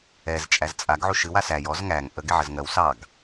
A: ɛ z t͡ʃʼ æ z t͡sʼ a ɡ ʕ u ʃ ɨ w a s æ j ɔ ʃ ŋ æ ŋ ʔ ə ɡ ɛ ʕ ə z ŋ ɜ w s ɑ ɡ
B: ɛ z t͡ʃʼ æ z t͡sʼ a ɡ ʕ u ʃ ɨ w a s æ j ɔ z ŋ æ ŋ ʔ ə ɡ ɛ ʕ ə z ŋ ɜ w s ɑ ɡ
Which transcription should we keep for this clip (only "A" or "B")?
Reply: B